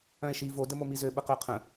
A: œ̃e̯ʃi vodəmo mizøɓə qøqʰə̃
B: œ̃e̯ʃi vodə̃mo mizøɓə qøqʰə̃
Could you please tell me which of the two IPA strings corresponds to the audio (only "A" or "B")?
A